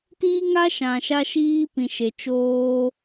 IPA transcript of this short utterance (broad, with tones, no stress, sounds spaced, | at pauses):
t iː˦ ŋ a˦ ʃ ã˨ ʃ a˧ ʃ iː˧ p ĩ˨ ʃ e˨ t͡ʃ oː˧